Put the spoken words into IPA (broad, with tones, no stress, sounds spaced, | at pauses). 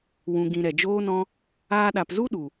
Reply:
w ũ˨ ɡ ĩ˨ ɾ ɛ˨ d͡ʒ oː˦ n ɔ̃˦ | aː˧ ɗ a˨ p z u˦ ɗ u˨